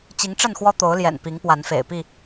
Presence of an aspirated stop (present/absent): absent